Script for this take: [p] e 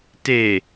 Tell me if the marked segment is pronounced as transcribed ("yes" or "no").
no